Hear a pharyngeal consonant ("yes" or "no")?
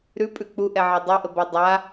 yes